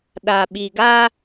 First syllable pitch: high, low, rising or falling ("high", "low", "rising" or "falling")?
low